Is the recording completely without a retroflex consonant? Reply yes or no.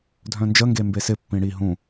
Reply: no